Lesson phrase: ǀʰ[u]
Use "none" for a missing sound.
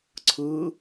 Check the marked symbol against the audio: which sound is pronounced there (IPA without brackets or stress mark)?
ɯ